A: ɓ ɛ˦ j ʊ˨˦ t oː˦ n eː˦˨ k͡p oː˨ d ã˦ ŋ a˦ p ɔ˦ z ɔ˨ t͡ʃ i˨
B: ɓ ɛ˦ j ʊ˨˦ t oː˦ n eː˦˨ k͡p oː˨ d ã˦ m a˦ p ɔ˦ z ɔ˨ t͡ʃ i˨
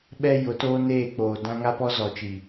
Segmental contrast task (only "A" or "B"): A